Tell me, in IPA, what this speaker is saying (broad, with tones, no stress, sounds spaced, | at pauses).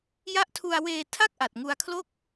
j a˦˥ ʔ tʰ u˧ a̯ w eː˧ tʰ a˥˩ k̚ ʔ a˨˩ t̚ ŋ u˧ a̯ kʰ l o˥˩ k̚